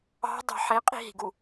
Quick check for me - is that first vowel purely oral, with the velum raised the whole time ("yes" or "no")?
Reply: yes